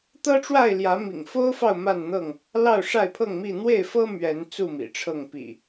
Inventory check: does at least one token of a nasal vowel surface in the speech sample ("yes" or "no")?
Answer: no